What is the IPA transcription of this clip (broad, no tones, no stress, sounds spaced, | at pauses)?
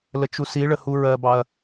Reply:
l ə t͡ʃ u s i ɭ ə h u ɹ ɜ b ɑ ɐ̯